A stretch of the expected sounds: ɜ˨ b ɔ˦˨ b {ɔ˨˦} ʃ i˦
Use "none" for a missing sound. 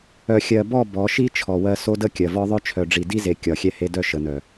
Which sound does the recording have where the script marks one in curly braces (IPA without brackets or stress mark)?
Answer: ɔ˨˦